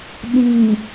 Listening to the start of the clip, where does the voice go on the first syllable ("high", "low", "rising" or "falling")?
low